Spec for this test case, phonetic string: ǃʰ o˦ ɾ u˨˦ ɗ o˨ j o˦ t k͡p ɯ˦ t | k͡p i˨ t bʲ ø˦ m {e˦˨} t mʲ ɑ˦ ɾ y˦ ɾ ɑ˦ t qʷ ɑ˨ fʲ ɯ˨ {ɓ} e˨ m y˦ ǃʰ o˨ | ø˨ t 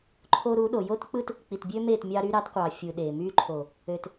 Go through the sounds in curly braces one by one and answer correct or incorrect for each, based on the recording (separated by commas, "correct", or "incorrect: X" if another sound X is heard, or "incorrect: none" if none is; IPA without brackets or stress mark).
correct, incorrect: ɗ